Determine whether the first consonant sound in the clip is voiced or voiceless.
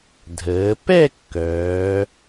voiced